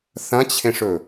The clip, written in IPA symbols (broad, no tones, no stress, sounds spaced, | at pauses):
θ ɐ̃ t͡ɕʰ ẽ ʂ ɵ